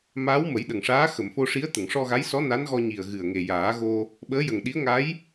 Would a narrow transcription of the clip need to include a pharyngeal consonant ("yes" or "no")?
no